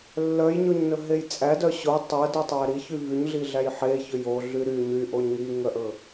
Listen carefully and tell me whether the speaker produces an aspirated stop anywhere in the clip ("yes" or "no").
no